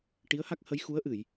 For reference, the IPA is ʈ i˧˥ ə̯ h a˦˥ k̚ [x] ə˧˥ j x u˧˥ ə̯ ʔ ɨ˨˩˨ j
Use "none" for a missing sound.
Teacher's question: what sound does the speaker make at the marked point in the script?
h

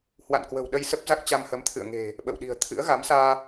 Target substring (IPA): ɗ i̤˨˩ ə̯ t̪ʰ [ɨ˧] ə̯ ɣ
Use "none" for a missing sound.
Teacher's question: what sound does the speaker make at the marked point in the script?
ɨ̰˧˥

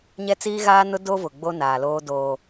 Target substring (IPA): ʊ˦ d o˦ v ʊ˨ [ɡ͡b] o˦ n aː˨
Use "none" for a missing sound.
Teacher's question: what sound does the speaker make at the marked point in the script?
ɡ͡b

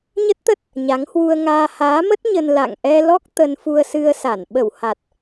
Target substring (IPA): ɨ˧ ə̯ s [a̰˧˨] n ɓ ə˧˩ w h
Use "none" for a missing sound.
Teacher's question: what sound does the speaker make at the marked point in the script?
a˧˩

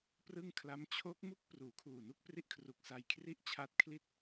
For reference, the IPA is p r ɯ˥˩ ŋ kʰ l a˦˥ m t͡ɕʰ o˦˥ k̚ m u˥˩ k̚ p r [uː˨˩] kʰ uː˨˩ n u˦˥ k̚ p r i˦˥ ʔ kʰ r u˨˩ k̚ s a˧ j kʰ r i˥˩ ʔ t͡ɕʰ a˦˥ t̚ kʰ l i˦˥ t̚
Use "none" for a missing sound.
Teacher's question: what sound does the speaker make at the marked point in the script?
uː˩˦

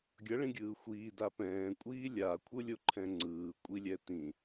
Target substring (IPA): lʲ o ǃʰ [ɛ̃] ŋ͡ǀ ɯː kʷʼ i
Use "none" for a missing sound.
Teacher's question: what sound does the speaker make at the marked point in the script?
ɛ̃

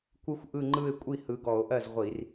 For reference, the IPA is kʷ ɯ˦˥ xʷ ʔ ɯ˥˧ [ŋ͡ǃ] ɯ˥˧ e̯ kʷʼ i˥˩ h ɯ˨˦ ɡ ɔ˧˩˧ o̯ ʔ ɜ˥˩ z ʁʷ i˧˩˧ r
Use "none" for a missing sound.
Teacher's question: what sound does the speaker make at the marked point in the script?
ŋ͡ǃ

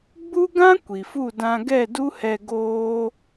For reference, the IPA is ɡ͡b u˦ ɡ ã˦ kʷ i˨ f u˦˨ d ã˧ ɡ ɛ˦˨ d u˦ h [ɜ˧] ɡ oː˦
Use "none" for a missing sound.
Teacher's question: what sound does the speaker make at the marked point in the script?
ɛ˧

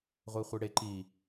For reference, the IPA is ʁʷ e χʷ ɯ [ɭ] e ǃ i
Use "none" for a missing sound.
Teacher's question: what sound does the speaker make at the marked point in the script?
ɽ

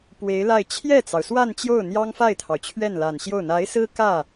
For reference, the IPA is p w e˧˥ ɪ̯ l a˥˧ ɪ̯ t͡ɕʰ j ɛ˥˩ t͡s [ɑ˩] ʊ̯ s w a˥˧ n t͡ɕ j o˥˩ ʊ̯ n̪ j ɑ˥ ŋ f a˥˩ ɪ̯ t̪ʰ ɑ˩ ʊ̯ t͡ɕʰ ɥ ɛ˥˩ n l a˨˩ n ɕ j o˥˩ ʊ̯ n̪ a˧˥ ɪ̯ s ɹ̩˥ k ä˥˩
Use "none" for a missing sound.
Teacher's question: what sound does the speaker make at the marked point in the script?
ɑ˩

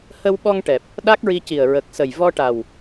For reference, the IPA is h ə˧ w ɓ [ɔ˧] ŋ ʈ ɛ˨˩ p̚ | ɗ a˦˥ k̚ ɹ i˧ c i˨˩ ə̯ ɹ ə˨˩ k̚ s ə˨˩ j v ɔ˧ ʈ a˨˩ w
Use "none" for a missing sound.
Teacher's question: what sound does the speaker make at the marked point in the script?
ɔ˧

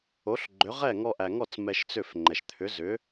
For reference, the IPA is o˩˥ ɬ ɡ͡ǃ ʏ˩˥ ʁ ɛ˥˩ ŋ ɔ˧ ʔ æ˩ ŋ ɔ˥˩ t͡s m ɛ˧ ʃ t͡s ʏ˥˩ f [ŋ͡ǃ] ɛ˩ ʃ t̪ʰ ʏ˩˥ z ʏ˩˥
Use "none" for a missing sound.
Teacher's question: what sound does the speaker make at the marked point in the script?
ŋ͡ǃ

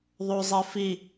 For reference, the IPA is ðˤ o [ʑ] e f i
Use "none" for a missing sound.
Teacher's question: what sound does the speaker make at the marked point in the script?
zˤ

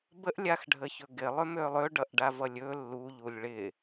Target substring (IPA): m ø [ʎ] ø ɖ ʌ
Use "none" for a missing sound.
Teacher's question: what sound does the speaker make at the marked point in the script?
lˠ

